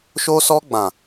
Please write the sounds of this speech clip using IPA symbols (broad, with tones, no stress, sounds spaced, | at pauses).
ʃ o˧ s ɔ˧ ɡ͡b ã˨